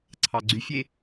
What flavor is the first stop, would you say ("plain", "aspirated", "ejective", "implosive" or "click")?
click